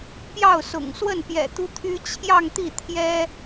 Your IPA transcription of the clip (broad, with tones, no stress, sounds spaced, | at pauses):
p j ɑ˥˩ ʊ̯ s ʊ̰˨˩ ŋ s w ə˥˩ n p j ɛ̰˨˩ t̪ u˥ t̪ʰ y˥ t͡ɕʰ j ɑ˥˧ ŋ t̪ i˥˩ t̪ʰ j ɛ˥